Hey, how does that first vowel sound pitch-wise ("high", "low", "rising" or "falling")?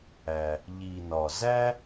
low